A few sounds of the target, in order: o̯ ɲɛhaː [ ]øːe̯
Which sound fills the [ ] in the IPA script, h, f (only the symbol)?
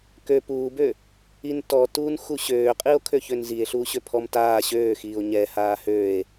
h